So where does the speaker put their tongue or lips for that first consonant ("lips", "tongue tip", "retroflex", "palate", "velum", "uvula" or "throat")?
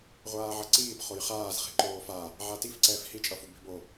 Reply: uvula